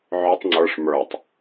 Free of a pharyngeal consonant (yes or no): no